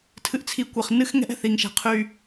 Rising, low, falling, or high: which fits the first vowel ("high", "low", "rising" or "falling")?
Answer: low